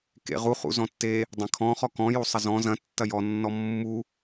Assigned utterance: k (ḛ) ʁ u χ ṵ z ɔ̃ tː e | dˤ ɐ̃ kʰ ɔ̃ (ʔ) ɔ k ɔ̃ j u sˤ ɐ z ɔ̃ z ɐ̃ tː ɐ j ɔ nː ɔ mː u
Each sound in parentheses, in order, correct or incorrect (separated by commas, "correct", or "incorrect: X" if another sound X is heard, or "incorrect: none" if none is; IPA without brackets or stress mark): correct, incorrect: χ